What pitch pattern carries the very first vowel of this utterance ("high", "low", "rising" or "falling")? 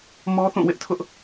high